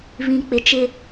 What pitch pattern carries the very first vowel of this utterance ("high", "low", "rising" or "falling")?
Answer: low